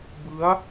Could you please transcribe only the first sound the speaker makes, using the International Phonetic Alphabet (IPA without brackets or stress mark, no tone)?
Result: b